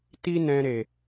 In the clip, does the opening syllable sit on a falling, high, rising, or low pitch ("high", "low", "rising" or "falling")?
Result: high